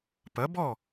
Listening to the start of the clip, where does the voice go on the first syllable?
rising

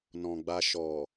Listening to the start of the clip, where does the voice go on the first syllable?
low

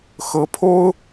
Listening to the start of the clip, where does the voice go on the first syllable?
rising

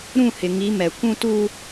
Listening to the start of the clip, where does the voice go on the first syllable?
falling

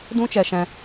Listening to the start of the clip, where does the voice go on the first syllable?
high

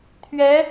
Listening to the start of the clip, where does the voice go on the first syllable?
rising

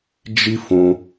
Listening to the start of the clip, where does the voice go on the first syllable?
high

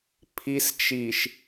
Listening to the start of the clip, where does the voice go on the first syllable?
low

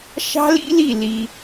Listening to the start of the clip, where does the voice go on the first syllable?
high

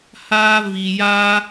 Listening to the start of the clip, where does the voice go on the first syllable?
high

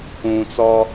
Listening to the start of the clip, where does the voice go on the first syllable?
low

